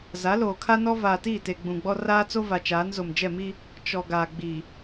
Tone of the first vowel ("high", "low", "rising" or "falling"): rising